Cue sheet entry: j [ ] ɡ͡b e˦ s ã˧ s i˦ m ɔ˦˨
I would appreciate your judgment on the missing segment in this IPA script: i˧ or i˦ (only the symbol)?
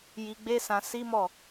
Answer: i˧